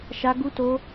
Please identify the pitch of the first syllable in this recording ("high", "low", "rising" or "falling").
high